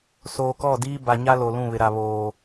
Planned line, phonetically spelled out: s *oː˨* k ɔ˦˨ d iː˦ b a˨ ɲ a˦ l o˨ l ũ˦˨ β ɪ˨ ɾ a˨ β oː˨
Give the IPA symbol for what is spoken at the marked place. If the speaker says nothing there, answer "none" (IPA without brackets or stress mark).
oː˨